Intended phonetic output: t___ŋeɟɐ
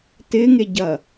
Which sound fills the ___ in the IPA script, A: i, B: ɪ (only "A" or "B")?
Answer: B